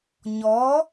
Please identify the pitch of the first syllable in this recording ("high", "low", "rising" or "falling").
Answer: rising